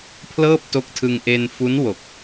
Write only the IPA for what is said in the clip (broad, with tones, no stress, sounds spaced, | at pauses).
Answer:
pʰ l ɤː˥˩ p̚ t o˦˥ k̚ tʰ ɯ˧ ŋ ʔ e˧ n f u˦˥ n w o˨˩ k̚